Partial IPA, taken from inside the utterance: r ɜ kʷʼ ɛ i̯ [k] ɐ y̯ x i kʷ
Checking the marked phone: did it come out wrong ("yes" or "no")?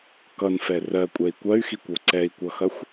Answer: yes